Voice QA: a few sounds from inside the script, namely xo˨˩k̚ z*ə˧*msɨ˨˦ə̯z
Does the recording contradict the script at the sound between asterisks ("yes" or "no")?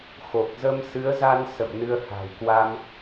no